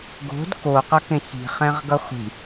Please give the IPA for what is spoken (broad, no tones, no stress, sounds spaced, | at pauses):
ɡ o̤ d k o q ʌ k ẽ ç i̤ χ ɛ̃ ʁ ɡ ʌ χʷ i̤